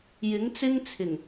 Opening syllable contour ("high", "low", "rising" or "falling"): rising